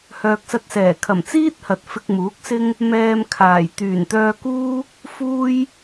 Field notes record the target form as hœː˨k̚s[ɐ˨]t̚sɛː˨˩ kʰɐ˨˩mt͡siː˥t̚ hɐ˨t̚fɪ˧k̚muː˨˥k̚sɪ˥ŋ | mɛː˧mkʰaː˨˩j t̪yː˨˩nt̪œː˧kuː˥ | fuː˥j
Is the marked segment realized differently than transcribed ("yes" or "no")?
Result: yes